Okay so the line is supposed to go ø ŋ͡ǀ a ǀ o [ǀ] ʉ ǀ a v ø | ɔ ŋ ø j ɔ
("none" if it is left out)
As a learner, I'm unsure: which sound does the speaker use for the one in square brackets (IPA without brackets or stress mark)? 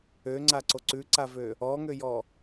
ǀ